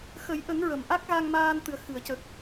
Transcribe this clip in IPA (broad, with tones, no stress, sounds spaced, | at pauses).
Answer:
x ə˨˩˦ j ʔ ə˨˩˦ ŋ ɹ ə˨˩ m ʔ a˦˥ k̚ ɣ a˧ ŋ m aː˧ n t̪ ɨ˨˩ ə̯ x ɨ˨˩˨ ə̯ c ə˨˩ k̚